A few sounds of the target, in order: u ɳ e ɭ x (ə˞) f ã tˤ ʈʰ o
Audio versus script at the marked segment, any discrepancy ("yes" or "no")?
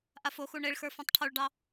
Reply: no